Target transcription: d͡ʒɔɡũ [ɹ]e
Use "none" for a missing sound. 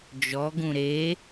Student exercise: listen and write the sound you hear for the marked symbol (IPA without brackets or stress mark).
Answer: ɾ